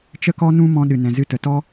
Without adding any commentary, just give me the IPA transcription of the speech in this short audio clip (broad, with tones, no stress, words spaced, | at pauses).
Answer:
t͡ʃə˦kɔ˦ nũ˧ mɔ̃˧ɗɨ˨nɛ̃˨zɨ˧ tə˨tɔ˦